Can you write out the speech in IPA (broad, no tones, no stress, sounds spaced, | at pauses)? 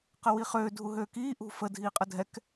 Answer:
q ə w i χ øː dʱ u ɦ øː k iː ʔ ṳ f ə dʱ iː qʼ ə dʱ ɛ k